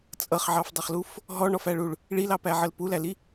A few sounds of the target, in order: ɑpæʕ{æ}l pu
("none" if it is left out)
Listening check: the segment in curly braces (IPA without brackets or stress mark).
ə